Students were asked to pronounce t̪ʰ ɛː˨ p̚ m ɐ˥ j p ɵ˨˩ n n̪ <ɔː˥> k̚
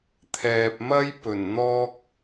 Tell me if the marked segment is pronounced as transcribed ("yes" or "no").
yes